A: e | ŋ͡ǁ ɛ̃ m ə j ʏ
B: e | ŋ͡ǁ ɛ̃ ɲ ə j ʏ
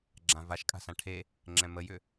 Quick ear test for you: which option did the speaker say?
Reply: A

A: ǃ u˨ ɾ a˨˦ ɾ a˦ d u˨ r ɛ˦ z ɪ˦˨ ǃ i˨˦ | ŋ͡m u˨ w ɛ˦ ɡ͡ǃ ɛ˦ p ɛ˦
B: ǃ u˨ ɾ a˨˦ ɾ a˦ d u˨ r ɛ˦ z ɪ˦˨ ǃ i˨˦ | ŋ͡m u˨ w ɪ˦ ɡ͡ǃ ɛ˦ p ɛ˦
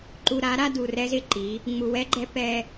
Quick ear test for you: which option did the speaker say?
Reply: A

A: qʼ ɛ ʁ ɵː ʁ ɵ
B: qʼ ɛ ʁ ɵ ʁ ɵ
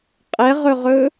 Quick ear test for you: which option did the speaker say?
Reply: B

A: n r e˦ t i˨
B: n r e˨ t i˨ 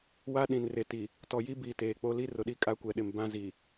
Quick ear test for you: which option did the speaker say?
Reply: B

